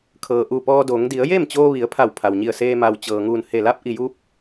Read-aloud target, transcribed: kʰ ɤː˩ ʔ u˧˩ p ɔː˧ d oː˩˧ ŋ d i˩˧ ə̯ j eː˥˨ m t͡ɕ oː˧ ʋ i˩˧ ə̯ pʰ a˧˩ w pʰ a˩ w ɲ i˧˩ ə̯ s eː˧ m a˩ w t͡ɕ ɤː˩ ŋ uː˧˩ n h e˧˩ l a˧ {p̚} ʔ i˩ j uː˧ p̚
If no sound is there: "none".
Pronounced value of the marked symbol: p̚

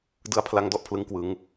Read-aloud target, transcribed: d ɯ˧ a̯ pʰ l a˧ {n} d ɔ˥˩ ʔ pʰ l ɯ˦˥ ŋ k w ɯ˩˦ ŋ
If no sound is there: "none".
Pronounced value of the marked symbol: ŋ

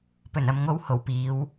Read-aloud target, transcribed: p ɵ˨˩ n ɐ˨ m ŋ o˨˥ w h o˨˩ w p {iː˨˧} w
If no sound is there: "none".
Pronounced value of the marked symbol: iː˨˧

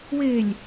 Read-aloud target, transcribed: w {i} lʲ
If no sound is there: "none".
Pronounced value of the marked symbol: e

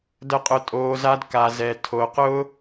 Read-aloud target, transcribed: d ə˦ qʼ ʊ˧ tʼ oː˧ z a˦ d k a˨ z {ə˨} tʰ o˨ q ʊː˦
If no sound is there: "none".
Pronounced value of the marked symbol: ɛ˨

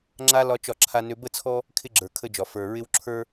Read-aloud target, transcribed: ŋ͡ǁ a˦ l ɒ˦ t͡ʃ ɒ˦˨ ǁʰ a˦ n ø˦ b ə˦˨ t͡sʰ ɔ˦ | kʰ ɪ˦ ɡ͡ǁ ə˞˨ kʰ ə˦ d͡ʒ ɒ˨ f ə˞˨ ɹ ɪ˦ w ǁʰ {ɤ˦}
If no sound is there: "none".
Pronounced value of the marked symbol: ə˞˦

